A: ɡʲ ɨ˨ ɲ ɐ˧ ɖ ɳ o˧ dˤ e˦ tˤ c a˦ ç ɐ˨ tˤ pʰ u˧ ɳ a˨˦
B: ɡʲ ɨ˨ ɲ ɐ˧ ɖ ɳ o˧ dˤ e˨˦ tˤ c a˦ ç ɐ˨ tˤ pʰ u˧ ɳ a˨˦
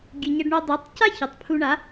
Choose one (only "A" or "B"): B